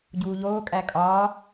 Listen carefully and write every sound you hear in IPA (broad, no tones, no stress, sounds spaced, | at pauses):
ɟ uː ʎ oː kʼ æ kʼ ɒː